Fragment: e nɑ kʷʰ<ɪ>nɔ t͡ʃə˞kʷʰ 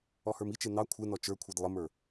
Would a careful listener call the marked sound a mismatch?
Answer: no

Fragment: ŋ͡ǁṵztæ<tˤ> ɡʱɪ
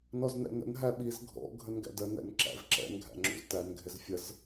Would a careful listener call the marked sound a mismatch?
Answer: yes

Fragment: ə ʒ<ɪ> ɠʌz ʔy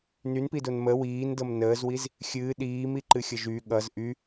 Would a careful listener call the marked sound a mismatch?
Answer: yes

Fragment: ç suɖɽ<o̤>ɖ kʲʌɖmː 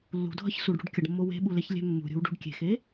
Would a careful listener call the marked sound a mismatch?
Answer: yes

